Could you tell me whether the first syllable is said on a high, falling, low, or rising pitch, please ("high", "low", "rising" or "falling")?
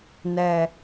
low